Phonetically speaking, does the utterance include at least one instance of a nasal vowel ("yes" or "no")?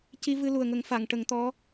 no